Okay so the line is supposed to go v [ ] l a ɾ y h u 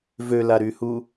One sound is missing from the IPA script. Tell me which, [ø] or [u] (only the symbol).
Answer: ø